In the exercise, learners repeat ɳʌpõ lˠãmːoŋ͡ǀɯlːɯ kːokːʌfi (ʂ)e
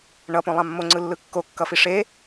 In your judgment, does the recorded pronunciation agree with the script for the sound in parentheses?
yes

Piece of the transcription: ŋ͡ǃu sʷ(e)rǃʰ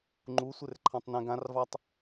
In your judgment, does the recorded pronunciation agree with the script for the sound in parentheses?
yes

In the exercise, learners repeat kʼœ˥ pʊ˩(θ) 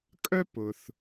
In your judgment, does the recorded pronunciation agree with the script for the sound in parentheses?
yes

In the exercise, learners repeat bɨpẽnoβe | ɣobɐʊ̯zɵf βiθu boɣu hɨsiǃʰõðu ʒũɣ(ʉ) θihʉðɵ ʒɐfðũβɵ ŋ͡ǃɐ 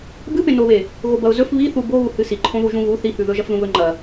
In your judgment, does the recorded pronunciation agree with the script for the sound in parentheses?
no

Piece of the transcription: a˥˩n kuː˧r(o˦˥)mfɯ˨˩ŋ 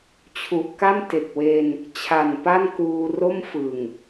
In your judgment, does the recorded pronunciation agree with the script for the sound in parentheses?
no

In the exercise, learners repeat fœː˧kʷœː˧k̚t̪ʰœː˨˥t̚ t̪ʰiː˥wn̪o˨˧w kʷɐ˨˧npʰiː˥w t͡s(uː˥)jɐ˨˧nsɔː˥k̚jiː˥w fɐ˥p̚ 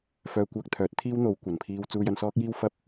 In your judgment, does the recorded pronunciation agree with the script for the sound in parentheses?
no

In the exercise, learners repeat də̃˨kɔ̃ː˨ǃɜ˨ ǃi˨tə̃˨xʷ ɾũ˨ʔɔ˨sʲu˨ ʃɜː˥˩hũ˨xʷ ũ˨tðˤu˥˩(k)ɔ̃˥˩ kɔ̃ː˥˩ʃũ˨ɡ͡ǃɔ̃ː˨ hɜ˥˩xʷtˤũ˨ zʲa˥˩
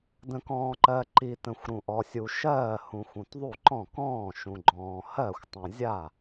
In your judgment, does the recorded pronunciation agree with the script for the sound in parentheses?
no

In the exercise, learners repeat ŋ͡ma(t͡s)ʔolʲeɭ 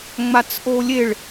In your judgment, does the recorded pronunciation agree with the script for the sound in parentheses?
yes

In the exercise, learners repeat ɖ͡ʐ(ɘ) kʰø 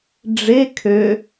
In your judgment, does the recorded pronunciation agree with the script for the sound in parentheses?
no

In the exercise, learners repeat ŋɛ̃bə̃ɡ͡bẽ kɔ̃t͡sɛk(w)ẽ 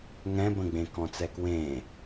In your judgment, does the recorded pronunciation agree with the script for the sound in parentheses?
yes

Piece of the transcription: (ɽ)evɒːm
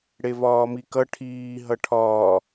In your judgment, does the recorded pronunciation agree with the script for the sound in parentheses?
yes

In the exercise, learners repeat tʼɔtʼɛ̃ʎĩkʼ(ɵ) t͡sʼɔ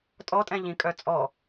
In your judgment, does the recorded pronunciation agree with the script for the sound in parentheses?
no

